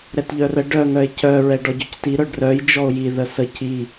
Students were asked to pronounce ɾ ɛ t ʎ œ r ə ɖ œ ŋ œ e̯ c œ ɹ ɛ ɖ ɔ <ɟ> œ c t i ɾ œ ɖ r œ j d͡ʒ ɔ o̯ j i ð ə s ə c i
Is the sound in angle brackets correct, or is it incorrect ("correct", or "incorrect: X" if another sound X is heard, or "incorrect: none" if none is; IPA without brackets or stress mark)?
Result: correct